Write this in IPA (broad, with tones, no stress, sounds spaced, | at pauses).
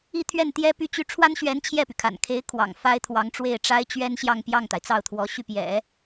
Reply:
i˥˧ t̪ʰ ɥ ɛ˥˩ n t̪ j ɛ˥ p y˥˧ t͡ɕ y˥˩ ʈ͡ʂʰ w a˥ n ɕ ɥ ɛ˧˥ n t͡ɕʰ j ɛ˥˩ p y˩ kʰ a̰˨˩ n kʰ e˧˥ ɪ̯ kʰ w ɑ̰˨˩ ŋ f a˥ ɪ̯ t̪ʰ w ɑ˧˥ ŋ ʈ͡ʂ w e˥˩ ɪ̯ ʈ͡ʂ a˥ ɪ̯ t͡ɕ ɥ ɛ˥ n ɕ j ɑ˥˧ ŋ p j ɑ˥˩ ŋ t̪ a˩ ɪ̯ t͡s ɑ˥˩ ʊ̯ t̪ʰ w ɔ˧˥ ɕ y˥˩ p j ɛ̰˨˩˦